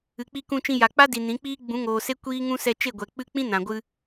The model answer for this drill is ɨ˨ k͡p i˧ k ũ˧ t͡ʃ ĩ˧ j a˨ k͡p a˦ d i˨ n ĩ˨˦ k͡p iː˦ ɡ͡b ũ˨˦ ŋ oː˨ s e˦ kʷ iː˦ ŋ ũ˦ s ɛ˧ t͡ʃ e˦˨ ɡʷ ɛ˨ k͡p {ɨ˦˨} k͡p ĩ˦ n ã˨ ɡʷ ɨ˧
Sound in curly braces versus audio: correct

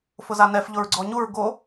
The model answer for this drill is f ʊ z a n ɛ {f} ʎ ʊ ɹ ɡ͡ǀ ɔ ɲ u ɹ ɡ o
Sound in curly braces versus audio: correct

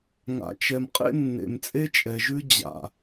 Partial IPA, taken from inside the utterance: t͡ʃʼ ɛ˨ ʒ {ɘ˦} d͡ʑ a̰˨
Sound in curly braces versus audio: incorrect: ʉ˦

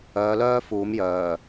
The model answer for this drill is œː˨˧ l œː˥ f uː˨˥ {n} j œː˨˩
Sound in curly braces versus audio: incorrect: m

